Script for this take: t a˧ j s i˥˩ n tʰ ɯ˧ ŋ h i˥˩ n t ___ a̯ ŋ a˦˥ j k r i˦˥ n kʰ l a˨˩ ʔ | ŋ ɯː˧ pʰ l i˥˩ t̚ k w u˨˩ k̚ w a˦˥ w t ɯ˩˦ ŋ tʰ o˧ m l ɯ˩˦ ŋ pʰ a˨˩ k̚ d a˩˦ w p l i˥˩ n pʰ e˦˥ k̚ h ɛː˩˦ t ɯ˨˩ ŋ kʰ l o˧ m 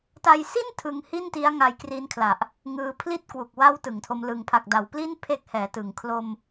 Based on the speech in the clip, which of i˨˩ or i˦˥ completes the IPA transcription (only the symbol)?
i˦˥